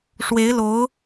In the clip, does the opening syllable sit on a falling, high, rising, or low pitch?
rising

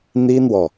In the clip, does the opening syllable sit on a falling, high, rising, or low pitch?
high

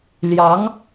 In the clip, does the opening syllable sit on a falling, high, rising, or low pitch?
rising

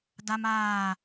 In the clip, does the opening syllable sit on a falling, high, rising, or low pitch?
high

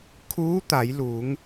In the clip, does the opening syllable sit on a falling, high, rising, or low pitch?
rising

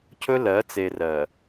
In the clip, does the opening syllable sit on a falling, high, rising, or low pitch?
high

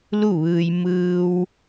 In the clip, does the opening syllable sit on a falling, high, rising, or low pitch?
falling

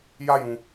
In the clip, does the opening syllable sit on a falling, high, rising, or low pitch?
high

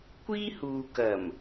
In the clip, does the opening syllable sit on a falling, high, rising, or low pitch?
high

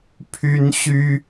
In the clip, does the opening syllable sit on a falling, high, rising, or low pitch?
high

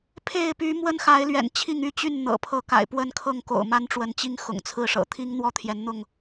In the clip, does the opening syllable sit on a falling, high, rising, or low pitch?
falling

